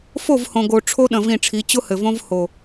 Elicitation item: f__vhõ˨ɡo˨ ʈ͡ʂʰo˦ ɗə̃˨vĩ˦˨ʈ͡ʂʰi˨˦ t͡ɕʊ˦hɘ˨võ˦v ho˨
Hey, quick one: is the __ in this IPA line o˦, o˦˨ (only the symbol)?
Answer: o˦˨